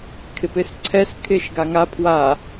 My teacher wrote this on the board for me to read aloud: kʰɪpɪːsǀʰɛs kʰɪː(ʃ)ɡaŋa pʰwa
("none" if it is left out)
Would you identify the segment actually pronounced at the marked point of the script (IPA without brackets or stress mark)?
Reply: ʃ